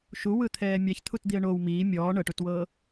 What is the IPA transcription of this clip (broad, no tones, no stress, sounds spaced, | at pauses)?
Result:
ʃ u w ɯ t̪ʰ ɛː mʲ a ç t̪ʰ u t d̪ i ə̯ ɳ o w m iː mʲ ɔː ɳ ɤ ʈ u t w ɤː